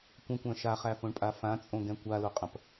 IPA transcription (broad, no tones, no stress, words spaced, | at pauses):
kʷɐ̃kʷæ̃ ʃaχæfõɳpʼa fãt͡sʼõɡɛ̃ kʷaloqʼɐ̃p